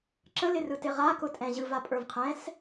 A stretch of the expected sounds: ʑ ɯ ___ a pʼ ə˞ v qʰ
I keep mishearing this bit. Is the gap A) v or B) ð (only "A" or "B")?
A